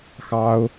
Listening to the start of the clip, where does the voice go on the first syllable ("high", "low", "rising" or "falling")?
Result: high